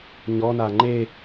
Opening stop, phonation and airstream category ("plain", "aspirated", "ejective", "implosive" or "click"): click